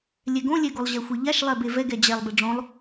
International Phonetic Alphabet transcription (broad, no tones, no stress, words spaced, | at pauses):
lʲɛɡõlʲɛɡolˠ ʑɛxʷeʎaʃlˠɛ bevɛ ɡɛd͡ʑɛlˠ beɖ͡ʐõlˠ